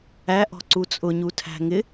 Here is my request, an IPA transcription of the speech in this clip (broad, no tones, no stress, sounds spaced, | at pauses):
æ ʔ ɔ̤ ǀ u t͡sʼ ʊ ɲ u tʰ æ̤ ŋ ɪ